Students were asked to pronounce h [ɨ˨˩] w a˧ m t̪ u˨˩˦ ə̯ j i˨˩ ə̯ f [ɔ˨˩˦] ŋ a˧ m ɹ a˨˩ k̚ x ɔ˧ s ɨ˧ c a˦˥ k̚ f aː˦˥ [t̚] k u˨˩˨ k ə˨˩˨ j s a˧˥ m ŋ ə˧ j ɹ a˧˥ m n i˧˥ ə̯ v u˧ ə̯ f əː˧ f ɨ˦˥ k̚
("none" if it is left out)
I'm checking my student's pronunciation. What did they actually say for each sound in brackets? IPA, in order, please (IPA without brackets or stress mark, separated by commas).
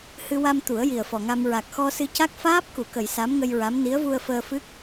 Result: ɨ˧, ɔ˨˩, p̚